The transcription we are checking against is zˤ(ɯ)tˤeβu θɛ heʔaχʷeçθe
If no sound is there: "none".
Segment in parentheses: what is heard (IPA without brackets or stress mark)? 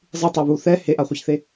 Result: ɯ